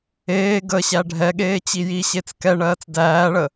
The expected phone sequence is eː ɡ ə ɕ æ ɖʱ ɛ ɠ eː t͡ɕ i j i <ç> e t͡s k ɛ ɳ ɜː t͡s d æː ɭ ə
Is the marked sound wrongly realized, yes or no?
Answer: yes